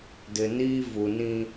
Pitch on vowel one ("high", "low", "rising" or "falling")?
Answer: low